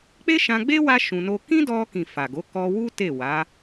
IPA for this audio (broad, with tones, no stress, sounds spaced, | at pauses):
k͡p e˦ ʃ ã˧ ɡ͡b e˦ w a˦ ʃ ũ˧ n o˦ k ĩ˦ d ɔ˧ k ĩ˨ f a˨ ɡ o˨˦ k ɔ˧ w u˦ t e˦˨ w a˨˦